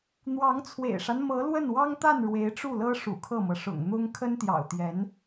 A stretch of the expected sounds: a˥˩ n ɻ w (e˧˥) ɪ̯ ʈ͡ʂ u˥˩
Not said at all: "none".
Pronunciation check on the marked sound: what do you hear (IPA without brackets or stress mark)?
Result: e˧˥